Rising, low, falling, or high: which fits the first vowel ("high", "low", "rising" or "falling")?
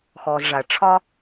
low